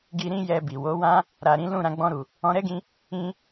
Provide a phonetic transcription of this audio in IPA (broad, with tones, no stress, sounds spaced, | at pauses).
ɡ i˧ ɾ ĩ˦ j ɛ˧ b i˨ w o˨˦ w ã˦ | ɾ a˨ ɾ ĩ˨˦ l ũ˦˨ ɾ ã˧ ɡ͡b ɔ̃˧ ɾ u˨ | ɔ̃˧ ɾ ɛ˦ ɡ ĩ˧ | ĩ˧